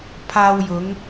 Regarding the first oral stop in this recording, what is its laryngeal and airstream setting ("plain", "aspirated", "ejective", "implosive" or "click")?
aspirated